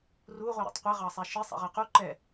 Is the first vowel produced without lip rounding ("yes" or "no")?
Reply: no